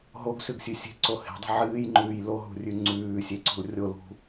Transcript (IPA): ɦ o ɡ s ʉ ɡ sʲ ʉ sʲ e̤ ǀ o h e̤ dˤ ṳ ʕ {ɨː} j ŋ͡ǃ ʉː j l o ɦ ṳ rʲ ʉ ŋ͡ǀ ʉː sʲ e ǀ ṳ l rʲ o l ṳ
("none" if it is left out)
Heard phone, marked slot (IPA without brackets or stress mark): ɨː